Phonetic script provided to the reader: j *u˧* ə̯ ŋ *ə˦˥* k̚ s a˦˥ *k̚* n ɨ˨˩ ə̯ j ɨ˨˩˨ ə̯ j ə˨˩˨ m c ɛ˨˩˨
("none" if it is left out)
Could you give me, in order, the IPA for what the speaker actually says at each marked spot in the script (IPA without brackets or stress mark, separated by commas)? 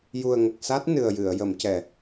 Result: u˨˩, ə˨˩, t̚